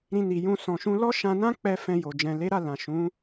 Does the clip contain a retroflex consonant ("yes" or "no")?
no